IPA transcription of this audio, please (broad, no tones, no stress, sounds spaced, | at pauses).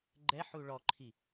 ɡ͡ǃ ɛ ħ u ɭ ɔ ǃʰ i